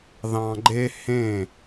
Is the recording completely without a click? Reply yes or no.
no